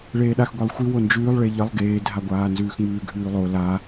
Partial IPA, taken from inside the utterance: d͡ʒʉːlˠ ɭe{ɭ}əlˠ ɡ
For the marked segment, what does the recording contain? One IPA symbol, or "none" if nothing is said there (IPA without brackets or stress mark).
ʎ